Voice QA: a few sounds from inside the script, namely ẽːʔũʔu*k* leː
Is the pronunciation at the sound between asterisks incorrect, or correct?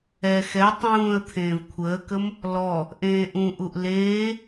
incorrect